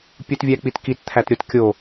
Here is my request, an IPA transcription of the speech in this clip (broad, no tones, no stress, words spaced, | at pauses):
pʲutvʲæk͡pitkit t̪ʰætɾʲot kʲo